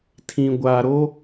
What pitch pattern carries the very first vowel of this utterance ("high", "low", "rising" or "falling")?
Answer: low